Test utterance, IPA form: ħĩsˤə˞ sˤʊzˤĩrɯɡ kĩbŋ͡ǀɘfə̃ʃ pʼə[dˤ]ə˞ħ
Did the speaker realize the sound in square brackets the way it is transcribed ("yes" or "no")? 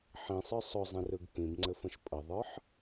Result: no